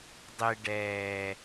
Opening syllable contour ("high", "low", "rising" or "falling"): low